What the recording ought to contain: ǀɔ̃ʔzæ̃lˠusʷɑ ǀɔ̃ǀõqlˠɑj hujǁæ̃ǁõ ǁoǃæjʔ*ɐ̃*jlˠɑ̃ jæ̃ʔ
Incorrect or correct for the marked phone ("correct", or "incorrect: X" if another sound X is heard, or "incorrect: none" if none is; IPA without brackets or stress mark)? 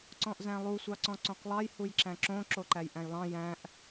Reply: incorrect: æ̃